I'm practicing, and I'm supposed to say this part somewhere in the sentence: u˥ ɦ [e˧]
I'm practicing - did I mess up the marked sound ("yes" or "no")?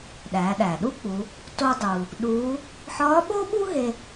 no